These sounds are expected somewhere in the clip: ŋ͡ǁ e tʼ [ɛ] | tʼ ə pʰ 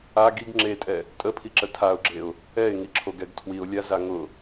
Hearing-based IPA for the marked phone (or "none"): ɛ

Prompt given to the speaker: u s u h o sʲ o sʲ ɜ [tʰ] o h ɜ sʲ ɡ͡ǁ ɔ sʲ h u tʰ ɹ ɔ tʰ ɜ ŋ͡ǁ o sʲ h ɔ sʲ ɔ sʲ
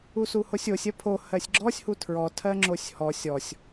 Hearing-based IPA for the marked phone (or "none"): pʰ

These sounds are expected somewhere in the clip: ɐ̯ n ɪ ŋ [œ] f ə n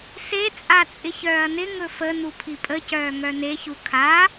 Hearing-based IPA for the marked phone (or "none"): ɵ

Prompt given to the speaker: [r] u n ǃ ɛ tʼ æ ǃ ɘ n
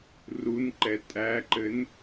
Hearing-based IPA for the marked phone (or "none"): r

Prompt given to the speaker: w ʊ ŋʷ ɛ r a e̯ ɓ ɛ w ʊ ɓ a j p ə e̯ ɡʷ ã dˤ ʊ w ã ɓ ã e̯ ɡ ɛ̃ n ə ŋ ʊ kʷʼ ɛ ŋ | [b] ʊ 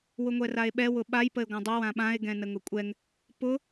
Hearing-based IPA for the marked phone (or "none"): p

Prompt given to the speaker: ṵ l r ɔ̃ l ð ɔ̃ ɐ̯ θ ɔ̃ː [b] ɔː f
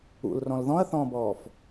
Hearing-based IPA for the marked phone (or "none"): b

